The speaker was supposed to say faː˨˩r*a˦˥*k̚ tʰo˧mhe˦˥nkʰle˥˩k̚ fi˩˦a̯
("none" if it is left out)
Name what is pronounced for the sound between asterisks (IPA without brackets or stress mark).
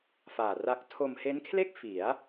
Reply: a˦˥